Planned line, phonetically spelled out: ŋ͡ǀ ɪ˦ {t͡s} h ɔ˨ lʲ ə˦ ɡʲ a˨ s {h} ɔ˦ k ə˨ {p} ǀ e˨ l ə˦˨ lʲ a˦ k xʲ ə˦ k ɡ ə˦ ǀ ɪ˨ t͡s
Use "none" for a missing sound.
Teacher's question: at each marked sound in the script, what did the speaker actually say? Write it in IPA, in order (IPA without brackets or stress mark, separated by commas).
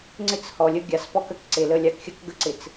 t͡s, p, k